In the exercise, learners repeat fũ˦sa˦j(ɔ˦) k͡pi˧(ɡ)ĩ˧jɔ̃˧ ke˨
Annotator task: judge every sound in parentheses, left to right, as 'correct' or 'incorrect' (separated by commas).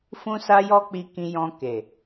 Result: correct, incorrect